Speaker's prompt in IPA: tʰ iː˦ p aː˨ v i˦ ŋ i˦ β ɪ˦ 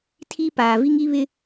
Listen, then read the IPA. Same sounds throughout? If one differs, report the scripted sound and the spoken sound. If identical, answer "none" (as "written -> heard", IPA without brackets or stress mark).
none